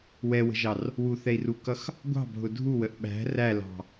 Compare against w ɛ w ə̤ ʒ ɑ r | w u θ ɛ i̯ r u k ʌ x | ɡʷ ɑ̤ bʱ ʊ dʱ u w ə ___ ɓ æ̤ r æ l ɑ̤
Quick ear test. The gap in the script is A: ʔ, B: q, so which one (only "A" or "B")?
A